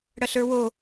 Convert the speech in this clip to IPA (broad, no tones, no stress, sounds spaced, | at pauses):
ɽ ɐ ɬ ə˞ w o